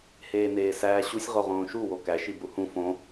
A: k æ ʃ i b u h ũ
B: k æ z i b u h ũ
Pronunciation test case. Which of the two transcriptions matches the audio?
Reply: A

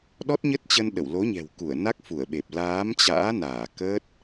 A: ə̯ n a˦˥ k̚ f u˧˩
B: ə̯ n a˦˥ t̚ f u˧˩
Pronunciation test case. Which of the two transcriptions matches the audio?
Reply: A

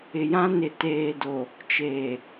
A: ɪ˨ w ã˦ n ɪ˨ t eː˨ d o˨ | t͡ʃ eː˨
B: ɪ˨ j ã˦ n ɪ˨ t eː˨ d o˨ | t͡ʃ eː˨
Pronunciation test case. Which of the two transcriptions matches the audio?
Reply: B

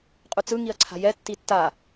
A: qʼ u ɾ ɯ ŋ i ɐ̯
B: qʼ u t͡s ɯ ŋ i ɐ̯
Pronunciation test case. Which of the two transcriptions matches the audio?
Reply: B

